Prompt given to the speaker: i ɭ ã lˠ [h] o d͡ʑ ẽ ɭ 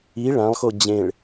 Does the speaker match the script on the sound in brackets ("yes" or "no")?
no